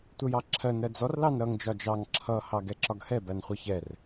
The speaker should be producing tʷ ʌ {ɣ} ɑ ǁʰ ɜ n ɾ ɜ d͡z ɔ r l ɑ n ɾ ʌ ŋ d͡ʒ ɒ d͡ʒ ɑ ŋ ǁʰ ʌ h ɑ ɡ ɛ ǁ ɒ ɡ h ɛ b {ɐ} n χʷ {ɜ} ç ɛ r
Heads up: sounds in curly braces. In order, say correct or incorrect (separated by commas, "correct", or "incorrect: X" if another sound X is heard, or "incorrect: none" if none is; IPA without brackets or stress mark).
incorrect: j, incorrect: æ, correct